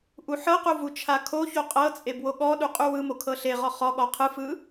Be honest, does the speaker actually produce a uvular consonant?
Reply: yes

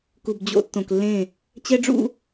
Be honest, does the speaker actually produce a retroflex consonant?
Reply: yes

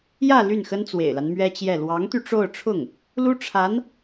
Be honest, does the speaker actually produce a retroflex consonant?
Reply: yes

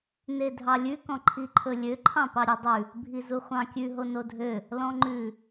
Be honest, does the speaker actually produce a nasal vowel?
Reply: yes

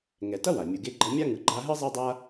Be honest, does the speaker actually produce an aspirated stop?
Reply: no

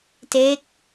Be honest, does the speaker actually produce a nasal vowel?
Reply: no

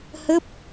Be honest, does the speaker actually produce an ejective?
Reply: no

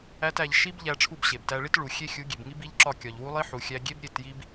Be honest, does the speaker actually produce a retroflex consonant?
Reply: yes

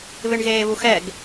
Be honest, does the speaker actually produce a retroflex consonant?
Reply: yes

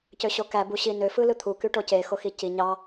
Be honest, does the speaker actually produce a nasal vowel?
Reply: no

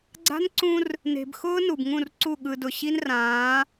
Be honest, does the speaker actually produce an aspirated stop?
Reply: no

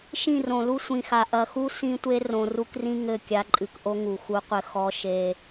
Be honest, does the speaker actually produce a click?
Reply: yes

